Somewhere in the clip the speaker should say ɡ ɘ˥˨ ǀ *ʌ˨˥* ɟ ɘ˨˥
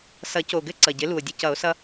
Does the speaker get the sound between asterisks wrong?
yes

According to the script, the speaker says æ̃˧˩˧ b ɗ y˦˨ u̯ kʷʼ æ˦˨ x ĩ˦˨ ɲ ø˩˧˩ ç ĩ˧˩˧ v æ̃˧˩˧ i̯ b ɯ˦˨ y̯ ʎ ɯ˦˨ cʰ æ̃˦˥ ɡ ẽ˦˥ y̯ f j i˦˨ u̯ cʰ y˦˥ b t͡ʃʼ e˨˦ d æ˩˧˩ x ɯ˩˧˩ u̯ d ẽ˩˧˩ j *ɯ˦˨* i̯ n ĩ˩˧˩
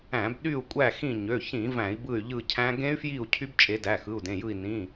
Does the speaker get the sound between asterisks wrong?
no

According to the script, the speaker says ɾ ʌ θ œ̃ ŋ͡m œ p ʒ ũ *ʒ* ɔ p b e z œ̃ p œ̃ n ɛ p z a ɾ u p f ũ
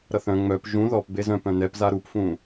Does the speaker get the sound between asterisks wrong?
yes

